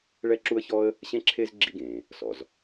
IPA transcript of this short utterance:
ɭɛ˥ǁu˥ə̯çɔ˥ə̯ | ɕẽ˥ǁʰe˥z ɡ͡ǁḭ˥ɡẽː˩ | sɔ̰˩z

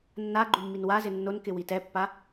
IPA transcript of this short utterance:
nːa ɡ͡ǃumːinwazɪ nːonkɪ witɛpːa

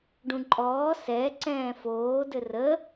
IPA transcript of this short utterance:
ɖũǃʼɔː sɛǀɛ̃ː foːdɘ rə

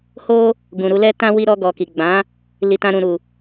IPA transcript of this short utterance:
ho˦ | ɡũ˨ɾu˧lɛ˦tã˦ wi˧ɾɔ˧ɡɔ˨ ki˨ɡ͡bã˨˦ | li˧tã˧ ɾũ˨ɾu˨

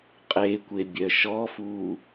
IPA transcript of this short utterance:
qʼekʷe bʲœʃɔfuː

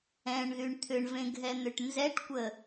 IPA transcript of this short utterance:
ɛ̃ɳðyɳ t̪ʰʏɳvẽ ɡʱɛn̪ʏʈnzɛʈkʷə

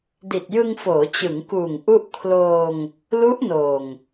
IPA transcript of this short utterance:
di˨˩t̚jɯ˧ŋfoː˩˦ t͡ɕɯ˩˦ŋkuː˨˩ŋ ʔu˥˩ʔ kʰloː˧ŋ | lu˦˥ʔ noː˨˩ŋ

